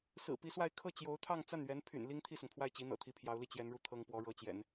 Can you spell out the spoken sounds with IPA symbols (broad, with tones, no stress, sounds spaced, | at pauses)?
s ɹ̩˨˩ p i˧˥ s w a˥˧ ɪ̯ kʰ ɤ˥˩ t͡ɕ j o˧˥ ʊ̯ t̪ʰ ɑ˥˧ ŋ t͡s a˥˩ n ɥ ɛ˧˥ n pʰ y̰˨˩ n l i˥ ŋ t̪ʰ i˥˩ s ʊ˩ ŋ pʰ w a˥˩ ɪ̯ t͡ɕ i˧˥ n̪ ɤ̰˨˩ t̪ʰ i˧˥ pʰ j ɑ˧˥ ʊ̯ l i˥˩ t͡ɕ j ɛ˧˥ n ɻ u˥˩ t̪ʰ ɤ˥ ŋ p w ɔ˧˥ ɻ ɤ˧˥ t͡ɕ j ɛ̰˨˩˦ n